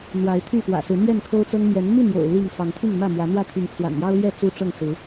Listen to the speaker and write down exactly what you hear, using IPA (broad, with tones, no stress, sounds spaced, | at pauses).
n̪ w a˨˦ ɪ̯ t̪ʰ y˥˨ x w ä̰˨˩ s ɹ̩˨˦ n̪ j ɛ˥˨ n kʰ o˦ ʊ̯ t͡s ɤ˦ ŋ m j ɛ˨˦ n m i˥˨ n j o̰˨˩ ʊ̯ l i˥˨ ŋ f ɑ˨˦ ŋ t̪ʰ i˥˨ ŋ m ä˥˨ m w ä˨˦ n̪ w ä˥˨ t̪ʰ i˨˦ ŋ kʰ w a̰˨˩ n j ɑ˦ ʊ̯ l j ɛ˥˨ t͡s u˦ ʈ͡ʂ ɤ˥˨ ŋ s ɹ̩˨˦